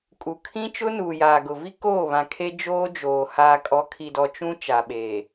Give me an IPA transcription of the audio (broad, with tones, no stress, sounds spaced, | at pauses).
kʼ u˨ kʰ ĩ˦ t͡ʃ ʊ˦ n uː˨ j aː˨ ɡ ʊ˨ v i˦ k oː˦˨ β ã˨ kʰ e˦ d͡ʒ oː˦ d͡ʒ oː˨ h aː˨ kʼ ɔ˨˦ kʰ i˨ d ɔ˨ t͡ʃ ũ˦ t͡ʃ a˨ ɓ eː˨